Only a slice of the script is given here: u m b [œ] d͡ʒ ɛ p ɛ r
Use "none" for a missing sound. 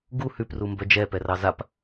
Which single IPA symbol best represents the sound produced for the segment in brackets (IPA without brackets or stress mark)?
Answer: œ